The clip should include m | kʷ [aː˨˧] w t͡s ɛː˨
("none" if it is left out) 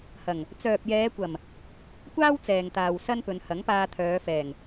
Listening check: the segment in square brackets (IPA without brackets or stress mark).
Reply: aː˥